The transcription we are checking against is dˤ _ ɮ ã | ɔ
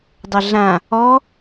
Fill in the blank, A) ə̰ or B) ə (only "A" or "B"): B